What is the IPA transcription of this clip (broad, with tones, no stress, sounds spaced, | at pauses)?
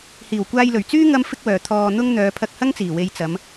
h iː˨˩ w kʷ aː˧ j l ɵ˨˩ ɥ t͡s yː˥ ŋ ɐ˥ m f ɪ˥ k̚ w œː˨ t̪ʰ ɔː˧ n̪ ʊ˥ ŋ n̪ œː˨˧ pʰ ɐ˧ k̚ h ɐ˥ ŋ t͡s iː˨˩ w e˨˧ j t͡s ɐ˨˧ m